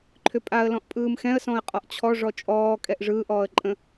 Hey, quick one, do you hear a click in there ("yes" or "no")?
yes